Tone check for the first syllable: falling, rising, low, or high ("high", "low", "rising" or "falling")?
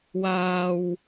low